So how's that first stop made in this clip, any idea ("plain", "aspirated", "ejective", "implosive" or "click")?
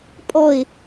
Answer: ejective